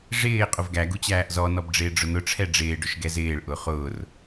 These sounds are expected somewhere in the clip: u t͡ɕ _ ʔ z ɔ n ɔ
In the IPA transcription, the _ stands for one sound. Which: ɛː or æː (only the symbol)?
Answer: æː